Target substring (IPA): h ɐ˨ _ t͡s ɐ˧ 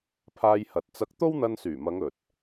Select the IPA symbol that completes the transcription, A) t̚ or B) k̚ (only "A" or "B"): A